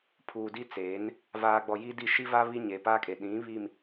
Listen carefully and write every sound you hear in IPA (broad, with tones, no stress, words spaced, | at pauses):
pʰuː˨di˦t͡seː˨˦n | vaː˨ɡ͡bɔ˨ jiː˦di˦˨ ʃi˦va˦ βi˦ɲe˨paː˦kʼe˨ ɗĩ˨˦ βi˨m